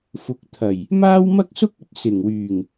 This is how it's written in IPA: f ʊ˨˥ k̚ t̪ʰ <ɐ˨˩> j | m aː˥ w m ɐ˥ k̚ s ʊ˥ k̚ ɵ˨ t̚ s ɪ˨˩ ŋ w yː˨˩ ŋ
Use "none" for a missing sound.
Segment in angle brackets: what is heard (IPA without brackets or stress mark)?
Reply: ɐ˨˩